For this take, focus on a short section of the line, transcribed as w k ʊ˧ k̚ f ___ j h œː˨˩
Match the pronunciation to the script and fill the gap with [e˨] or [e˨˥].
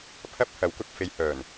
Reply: e˨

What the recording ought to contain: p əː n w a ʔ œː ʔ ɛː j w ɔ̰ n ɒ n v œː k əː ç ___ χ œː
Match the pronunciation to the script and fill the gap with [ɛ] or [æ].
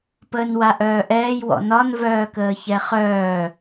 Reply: ɛ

